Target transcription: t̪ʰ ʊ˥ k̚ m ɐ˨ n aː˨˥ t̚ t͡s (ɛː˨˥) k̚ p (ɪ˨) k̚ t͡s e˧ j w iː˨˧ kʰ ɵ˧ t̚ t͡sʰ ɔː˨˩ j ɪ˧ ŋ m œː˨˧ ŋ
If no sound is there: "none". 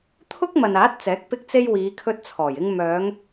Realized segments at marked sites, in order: ɛː˨˥, ɪ˧

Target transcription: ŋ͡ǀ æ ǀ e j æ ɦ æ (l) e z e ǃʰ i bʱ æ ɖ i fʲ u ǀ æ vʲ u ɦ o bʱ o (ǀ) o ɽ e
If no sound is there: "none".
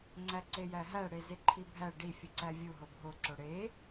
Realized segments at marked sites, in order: ɽ, ǀ

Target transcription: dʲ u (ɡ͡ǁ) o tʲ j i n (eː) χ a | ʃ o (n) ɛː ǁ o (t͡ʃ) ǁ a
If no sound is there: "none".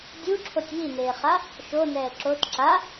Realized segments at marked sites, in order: ǁʰ, eː, n, t

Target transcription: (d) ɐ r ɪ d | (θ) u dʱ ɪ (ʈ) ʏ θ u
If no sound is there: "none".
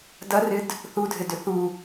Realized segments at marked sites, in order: d, θ, d

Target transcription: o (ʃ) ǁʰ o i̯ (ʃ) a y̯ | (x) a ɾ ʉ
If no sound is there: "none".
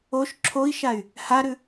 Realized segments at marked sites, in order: ʃ, ʃ, h

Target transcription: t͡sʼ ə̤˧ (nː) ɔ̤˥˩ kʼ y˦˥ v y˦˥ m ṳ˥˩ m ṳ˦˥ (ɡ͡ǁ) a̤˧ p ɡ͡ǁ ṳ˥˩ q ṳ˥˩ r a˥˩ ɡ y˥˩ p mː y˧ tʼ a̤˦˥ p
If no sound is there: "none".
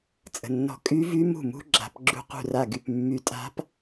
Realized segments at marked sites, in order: nː, ɡ͡ǁ

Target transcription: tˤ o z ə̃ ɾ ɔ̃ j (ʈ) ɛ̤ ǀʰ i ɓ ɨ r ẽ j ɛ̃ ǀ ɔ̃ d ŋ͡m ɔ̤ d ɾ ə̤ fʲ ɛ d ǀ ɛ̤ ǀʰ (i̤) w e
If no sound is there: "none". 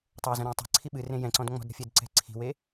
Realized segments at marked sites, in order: tˤ, i̤

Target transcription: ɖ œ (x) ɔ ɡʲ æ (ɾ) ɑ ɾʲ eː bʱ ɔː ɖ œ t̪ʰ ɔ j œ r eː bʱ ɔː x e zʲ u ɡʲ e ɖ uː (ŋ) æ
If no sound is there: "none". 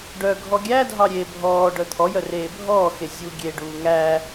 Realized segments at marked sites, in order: ɡʱ, dʱ, ŋ

